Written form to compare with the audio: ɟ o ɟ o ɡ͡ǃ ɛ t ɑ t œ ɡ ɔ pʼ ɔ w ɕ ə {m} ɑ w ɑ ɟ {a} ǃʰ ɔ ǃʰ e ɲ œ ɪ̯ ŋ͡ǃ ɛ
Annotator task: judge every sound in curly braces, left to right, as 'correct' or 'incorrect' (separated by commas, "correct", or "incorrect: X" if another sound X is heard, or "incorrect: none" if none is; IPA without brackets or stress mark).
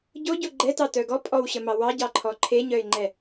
correct, incorrect: ɑ